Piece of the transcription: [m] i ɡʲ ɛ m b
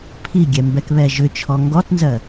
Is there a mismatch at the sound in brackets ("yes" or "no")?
yes